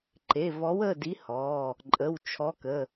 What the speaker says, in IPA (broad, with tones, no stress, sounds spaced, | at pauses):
ǃ e˩˧˩ v ɔ˨˥ w ə˩˧˩ d i˨˥ h ɔ˩˧˩ | ǃʼ ə˩˧˩ w t͡ʃʰ ɔ˨˥ k ə˩˧˩